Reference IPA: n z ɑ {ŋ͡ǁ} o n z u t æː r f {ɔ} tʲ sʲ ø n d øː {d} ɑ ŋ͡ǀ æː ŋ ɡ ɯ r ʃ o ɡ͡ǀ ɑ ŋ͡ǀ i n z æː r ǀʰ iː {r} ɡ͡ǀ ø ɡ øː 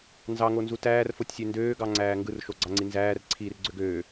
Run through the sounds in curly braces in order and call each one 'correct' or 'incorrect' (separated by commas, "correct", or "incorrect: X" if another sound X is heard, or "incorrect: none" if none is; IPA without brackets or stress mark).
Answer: incorrect: ŋ, incorrect: o, incorrect: ɡ, correct